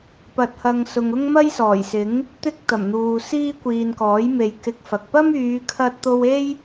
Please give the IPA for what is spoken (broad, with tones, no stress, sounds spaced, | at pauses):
p ɐ˧ t̚ h ɐ˧ ŋ s ʊ˨ ŋ ʊ˥ ŋ m ɐ˥ j s ɔː˨˩ j s ɪ˨˥ ŋ | t̪ ɪ˥ k̚ t̪ ɐ˨˩ m n̪ uː˨ s iː˥ kʷ iː˨ n k ɔː˨˥ j m e˨˧ j k ɪ˧ k̚ f ɐ˨ k̚ p ɐ˥ m yː˨˧ kʰ ɐ˥ t̚ t̪ o˥ w e˥ j